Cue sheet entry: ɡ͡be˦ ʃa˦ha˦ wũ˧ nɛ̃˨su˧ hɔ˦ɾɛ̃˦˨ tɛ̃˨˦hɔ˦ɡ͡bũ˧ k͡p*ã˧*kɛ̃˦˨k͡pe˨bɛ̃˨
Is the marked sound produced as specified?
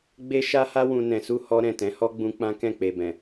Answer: no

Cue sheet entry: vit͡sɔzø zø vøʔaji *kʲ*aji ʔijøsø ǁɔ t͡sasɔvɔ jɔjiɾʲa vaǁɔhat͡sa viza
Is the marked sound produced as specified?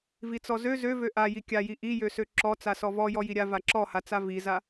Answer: yes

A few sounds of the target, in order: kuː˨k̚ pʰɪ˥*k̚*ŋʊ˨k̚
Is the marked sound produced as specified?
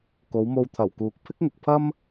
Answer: yes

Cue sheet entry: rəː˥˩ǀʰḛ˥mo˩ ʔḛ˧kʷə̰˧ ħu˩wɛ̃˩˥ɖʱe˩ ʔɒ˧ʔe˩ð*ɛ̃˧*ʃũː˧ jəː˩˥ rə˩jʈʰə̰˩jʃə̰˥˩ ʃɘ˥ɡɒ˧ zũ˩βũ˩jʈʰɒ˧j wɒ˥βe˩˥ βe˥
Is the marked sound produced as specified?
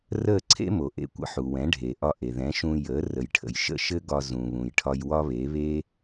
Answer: no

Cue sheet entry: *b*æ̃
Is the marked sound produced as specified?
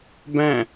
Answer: yes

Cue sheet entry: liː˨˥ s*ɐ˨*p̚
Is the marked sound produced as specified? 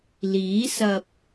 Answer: yes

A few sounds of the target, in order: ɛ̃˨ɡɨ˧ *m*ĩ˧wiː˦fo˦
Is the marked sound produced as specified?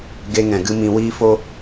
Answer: yes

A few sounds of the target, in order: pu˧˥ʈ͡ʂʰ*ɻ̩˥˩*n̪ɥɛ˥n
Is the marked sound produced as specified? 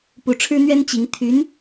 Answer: no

